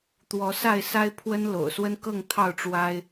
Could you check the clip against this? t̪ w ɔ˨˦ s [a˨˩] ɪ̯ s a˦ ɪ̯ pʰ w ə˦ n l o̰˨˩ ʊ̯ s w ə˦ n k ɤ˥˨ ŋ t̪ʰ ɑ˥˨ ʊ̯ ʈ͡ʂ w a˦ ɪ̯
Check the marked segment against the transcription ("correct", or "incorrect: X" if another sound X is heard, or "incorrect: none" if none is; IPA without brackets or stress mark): incorrect: a˥˨